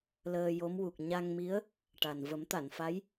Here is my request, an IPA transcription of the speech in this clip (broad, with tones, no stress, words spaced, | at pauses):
ləː˧ jo˧˥mwu˨˩k̚ ɲa˧ŋmi˧˥ə̯ | ʈa˨˩n və˨˩˦mt̪a˨˩˨nfa˧˥j